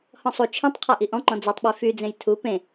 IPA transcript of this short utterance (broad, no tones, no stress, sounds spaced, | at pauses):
h ɔ̃ sˤ u t͡ʃʰ ĩ tˤ qʰ a ʔ i ʔ ɔ̃ ŋ͡ǃ ɔ̃ d͡z i tˤ ɓ e f y d͡z ẽ j tʰ u p ẽ